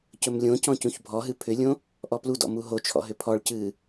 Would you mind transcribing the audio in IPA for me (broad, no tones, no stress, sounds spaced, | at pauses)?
c ɵ m lʲ õ c ɔ̃ c ũ ç bʱ ɔ ɦ ɨ pʰ ʏ lʲ õ | ʔ ɔ p l u d ɔ̰ m u ɦ o t͡ʃʰ ɔ̰ ɦ ʏ pʰ ɔ ɭ c ɨː